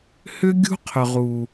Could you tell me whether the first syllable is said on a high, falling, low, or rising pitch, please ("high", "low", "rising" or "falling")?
high